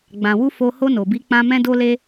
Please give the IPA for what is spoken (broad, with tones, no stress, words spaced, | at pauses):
ɡ͡bã˨wu˧ fo˧ ho˧ no˨bi˨˦k͡pã˧ mɛ̃˧do˧le˧